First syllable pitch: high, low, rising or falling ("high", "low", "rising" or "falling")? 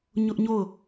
high